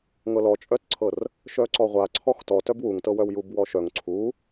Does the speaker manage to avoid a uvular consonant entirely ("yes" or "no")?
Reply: no